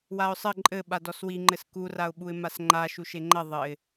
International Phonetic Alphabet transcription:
w a ʊ̯ sˤ ɘ ǃʼ ɘ ɓ a d ɔ s w i ŋ͡ǃ ɘ s k u r a ʊ̯ ɓ u ɪ̯ m a s ŋ͡ǃ a ʃ u ʃ e ŋ͡ǃ ɐ ðˤ ɘ ɪ̯

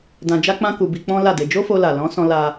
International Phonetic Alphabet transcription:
d ã˧ d͡ʒ a˦ k͡p ã˦ k u˧ b i˧ k͡p ɔ̃˦ l a˦˨ d e˧ d͡ʒ o˦ f o˧ l a˨ l ɔ̃˨˦ s ɔ̃˧ l a˦

